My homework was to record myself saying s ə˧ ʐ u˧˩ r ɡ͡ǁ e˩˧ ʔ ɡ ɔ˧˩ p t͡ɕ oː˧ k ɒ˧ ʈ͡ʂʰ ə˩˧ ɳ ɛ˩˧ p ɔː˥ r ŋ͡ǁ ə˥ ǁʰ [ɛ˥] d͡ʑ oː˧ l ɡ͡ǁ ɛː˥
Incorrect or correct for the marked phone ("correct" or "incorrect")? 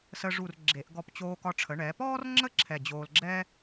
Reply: incorrect